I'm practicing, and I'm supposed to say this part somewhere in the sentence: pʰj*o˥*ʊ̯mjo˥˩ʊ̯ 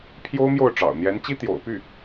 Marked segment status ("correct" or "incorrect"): correct